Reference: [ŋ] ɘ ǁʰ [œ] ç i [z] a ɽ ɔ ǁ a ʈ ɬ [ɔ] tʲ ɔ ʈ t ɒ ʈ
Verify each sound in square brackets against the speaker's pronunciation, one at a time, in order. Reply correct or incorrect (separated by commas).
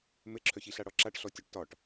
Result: incorrect, correct, incorrect, correct